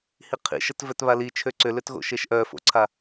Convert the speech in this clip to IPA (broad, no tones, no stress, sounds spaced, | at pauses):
h i qʰ ḭ ʃ ə t v œ t β a l i t͡ʃʰ ø ǀ ʏ l ø t ɣ o̰ ʃ e ʃ ʔ œ f o̰ ǀʰ a